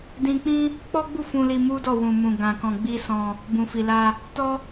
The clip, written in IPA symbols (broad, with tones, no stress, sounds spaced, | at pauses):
d ĩ˧ k͡p ĩ˦ | k͡p ɔ˦ ɡ͡b u˦˨ f ũ˧ l i˧ m u˦ d ɔ˦˨ w ũ˨ m ũ˨ ɡ ã˧ k ɔ̃˧ ɡ͡b i˦ s ɔ̃˧ | b ũ˨ f i˨ l a˧ | t ɔ˦